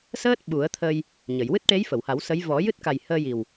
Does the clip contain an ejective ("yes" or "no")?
no